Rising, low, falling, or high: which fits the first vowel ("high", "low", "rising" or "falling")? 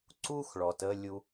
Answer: high